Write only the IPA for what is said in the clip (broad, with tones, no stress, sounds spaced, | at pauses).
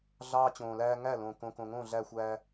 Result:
ɮ ɑː˦ t͡ɕ õː˨ l æː˦ ŋ æ˥˩ l õ˨ k õ˨ k õ˨ ŋ õ˥˩ ɮ æ˦ xʷ æ˦